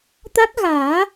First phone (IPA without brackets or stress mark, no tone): t̪